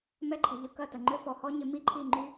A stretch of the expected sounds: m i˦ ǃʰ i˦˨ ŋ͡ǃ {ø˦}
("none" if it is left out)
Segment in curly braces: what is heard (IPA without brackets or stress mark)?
y˦